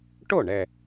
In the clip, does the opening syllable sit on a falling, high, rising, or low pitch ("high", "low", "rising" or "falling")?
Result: falling